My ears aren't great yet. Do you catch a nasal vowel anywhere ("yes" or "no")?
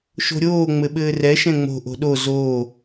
yes